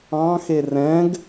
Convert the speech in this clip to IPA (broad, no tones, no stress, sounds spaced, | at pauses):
ɑ̃ x e r ɛ̃ ɡ